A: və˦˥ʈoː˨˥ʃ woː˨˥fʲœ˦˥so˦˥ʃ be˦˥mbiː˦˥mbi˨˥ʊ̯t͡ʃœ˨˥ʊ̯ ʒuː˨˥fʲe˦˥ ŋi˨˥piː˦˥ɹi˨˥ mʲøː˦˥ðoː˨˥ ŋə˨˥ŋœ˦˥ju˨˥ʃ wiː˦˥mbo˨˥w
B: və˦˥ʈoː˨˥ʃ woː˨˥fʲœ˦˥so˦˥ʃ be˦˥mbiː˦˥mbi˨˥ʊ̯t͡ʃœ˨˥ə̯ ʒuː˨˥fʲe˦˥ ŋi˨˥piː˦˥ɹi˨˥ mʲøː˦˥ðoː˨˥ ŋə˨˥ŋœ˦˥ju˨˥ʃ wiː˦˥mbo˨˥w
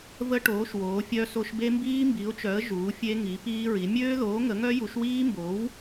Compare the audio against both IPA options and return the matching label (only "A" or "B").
B